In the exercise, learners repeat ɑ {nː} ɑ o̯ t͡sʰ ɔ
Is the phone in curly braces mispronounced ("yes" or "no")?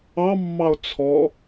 yes